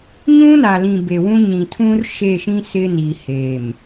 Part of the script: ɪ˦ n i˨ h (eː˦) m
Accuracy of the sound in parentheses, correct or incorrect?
incorrect